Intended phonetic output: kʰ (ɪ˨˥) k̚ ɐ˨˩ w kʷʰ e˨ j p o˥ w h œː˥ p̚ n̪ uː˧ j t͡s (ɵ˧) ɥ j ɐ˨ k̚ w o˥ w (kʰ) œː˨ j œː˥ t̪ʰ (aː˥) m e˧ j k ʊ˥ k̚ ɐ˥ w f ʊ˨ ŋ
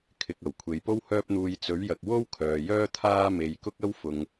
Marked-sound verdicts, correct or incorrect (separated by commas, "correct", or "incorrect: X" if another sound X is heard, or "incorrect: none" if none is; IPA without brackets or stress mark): incorrect: ɪ˨, incorrect: ɵ˨˥, correct, correct